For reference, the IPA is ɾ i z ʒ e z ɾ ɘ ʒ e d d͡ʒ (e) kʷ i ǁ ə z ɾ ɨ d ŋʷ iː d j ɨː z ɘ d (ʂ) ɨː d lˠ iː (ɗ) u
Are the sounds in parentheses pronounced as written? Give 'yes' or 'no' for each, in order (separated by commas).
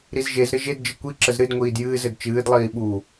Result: no, no, no